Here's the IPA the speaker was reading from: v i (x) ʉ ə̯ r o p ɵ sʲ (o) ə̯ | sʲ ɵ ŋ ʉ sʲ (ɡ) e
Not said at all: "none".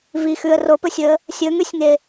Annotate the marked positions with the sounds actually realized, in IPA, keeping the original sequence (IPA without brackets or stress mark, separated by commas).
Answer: x, ɵ, ŋ